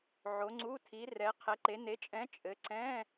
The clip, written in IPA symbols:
ʕ o˨˦ ŋ͡ǀ u˧˥˧ tʰ i˨˦ r ɛ˨˦ qʰ ɛ˨˦ ǃ e˨˦ n e˨˦ t͡ʃʼ ɛ̃˨˦ t͡ʃʼ ɘ˨˦ ǀ ɛ̃˧˥˧

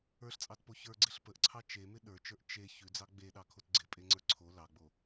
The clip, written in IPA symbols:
ə˞ ɬ t͡sʼ ɑ t p o ç ə˞ ɡ͡ǀ ɪ ɬ p ə ʔ ǀʰ ɑ t͡ʃ e m ɪ ɗ ə˞ t͡ʃ ə˞ ʔ t͡ʃ e ç ʉ d͡z ɑ ɡ͡b e ɗ ɑ kʰ o t ɡ͡ǀ ɪ pʼ e ŋ͡ǀ ə˞ ǀʰ o l ɑ ɡ͡b o

